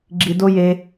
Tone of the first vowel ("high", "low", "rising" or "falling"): low